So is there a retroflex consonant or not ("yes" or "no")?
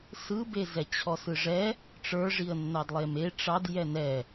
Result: yes